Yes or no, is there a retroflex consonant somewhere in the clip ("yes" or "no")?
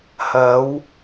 no